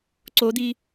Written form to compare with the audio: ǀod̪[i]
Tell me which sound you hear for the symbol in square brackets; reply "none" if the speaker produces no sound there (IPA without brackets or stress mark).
i